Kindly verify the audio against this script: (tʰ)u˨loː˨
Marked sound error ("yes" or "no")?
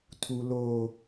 no